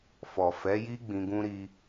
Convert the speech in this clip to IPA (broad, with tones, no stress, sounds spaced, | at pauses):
f ɔ˨ f ɛ˨˦ j i˦ ɡ͡b ĩ˧ ɡ ũ˦ ɾ i˧